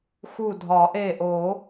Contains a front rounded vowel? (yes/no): no